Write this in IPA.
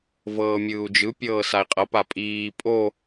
v ɤː mʲ ɯː u̯ d͡ʒ ɯ pʲ ɤː s a i̯ qʼ ɤ p a pʼ iː pʼ o

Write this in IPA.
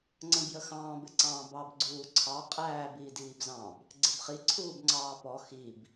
ŋ͡ǀ ə̃ b j ə x ɑ̃ː b ɪ ǀ ɑ̃ː b ɑ b ɡ͡ǀ uː ǀʰ ɑ qʼ æː b iː d iː b z ɑ̃ b | ɡ͡ǀ ɪ b χ i ǀʰ uː b ŋ͡ǀ ɑː p ɔ x i b

